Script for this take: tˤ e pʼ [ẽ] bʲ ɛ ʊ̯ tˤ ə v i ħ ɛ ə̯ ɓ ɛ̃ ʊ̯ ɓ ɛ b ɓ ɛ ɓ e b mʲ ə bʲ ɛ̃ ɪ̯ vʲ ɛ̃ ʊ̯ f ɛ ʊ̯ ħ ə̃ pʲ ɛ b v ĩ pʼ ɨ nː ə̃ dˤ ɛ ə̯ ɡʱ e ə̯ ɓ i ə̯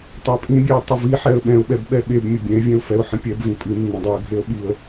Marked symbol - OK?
no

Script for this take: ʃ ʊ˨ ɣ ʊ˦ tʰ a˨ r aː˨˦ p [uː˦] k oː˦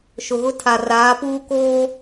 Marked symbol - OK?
yes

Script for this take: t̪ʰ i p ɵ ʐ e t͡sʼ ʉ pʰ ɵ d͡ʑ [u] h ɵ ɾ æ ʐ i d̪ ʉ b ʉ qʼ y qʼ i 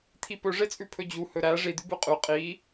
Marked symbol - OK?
yes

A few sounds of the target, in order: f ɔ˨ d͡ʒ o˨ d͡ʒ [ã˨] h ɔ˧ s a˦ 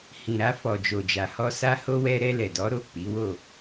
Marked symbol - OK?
no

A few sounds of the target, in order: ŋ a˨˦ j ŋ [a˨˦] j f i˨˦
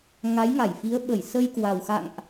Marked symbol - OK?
no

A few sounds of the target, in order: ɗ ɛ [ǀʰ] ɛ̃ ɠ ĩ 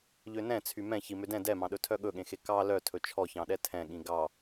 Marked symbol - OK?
no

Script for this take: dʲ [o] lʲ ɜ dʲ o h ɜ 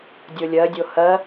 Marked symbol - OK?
yes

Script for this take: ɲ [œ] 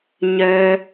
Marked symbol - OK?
yes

